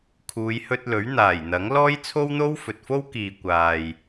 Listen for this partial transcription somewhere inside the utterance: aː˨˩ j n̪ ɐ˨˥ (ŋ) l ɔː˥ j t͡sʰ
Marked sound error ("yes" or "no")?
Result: no